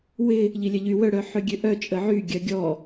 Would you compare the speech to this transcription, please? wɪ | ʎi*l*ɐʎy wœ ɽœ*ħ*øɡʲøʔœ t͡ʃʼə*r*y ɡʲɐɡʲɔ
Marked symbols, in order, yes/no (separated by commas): no, yes, no